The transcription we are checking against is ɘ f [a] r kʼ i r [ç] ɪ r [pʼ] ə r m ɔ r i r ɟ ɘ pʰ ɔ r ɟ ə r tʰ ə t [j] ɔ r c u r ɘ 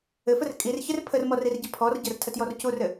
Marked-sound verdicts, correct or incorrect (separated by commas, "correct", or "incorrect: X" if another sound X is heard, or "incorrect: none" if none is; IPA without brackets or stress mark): incorrect: ə, correct, incorrect: pʰ, correct